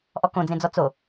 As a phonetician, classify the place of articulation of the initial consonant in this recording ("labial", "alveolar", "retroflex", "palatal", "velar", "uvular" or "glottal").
glottal